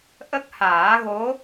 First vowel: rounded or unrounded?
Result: unrounded